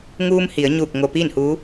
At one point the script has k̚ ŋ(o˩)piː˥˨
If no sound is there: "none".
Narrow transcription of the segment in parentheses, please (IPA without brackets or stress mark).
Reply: o˧